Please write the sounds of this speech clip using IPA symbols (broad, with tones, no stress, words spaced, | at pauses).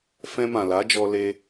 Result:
fɛ̃˧mã˨la˨˦d͡ʒɔ˧ le˧